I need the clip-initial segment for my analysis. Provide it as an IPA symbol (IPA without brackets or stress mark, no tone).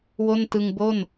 w